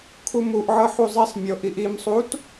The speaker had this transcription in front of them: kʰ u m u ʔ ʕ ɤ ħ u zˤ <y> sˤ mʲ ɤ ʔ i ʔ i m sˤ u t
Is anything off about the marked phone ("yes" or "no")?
yes